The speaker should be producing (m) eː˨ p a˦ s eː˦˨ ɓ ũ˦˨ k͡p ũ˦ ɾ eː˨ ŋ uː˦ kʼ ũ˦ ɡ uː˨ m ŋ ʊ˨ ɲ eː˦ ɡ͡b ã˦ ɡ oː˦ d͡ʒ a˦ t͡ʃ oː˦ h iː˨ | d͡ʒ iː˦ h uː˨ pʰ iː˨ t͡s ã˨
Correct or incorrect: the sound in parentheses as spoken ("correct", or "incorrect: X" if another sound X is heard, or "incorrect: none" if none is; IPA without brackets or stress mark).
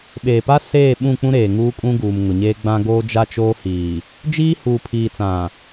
incorrect: ɓ